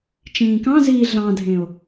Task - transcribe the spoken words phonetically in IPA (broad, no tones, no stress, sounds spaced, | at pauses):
t͡ʃ ĩː k ɑ̃ z iː ɮ ɑ̃ dʱ ẽ o̯